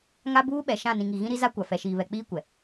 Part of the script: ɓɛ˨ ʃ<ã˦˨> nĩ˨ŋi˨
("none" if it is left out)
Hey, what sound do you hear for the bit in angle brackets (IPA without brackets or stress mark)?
ã˦˨